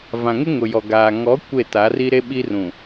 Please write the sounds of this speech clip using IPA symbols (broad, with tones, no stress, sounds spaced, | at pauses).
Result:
v ã˨ ŋ ɪ˦ ŋ ʊ˨ j ɔ˨ ɡ aː˨ ŋ ɔ˨˦ kʷ e˦˨ t a˨˦ r i˦ ɾ e˦ ɓ i˦ r ũ˨